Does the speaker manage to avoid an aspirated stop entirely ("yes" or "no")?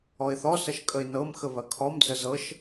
no